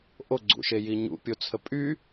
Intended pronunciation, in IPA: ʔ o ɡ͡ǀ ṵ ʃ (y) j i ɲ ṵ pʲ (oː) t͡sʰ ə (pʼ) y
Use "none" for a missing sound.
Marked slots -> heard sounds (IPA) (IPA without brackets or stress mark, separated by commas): e, o, pʼ